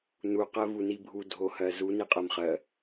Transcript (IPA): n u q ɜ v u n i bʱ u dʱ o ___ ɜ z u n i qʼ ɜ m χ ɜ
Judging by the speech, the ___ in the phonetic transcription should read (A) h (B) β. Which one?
A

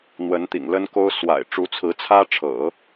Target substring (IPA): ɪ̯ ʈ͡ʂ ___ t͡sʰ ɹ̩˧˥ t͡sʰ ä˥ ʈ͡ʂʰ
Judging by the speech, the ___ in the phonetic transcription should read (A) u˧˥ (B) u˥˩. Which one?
A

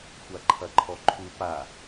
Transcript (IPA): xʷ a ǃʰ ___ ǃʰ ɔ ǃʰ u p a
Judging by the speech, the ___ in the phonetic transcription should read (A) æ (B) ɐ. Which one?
B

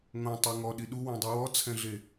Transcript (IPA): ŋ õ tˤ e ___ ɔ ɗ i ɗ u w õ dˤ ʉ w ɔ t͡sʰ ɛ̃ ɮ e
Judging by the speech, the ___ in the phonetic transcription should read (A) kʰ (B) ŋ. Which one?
B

